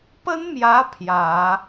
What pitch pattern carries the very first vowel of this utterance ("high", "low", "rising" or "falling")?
high